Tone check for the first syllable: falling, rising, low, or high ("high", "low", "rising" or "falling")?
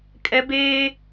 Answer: high